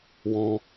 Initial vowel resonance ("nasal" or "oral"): nasal